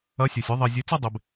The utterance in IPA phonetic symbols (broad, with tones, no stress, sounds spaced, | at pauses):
ɐ˧˥ sʲ o˨ sʲ ɨ˧˥ ðˤ i˨ zʲ ɨ˧˥ t͡s ɐ˥˧ dˤ e˨ b